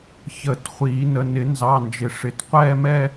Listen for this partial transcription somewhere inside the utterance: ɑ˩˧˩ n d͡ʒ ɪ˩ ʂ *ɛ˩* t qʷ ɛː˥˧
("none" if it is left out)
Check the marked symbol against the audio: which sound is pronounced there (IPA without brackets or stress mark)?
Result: ɪ˩